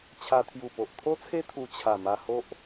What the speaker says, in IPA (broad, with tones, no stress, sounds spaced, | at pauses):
t͡ɕʰ a˧ t̪ʰ j u˨˩ p o˨ ʔ t̪ʰ o˦ t͡sʰ e˦ t̪ʰ u˧ t͡ɕʰ a˨˩ m a˧ h o˦ ʔ